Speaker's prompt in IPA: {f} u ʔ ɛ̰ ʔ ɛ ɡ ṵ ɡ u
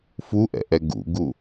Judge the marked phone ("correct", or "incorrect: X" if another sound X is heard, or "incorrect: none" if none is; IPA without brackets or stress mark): correct